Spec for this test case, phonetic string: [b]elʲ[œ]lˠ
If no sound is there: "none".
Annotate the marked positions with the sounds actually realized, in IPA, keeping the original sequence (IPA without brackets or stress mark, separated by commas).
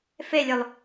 f, œ